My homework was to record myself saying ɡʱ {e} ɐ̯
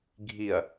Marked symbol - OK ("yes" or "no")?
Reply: no